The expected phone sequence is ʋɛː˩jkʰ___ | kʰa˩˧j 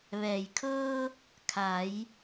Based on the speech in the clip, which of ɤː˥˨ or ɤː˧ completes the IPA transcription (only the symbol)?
ɤː˧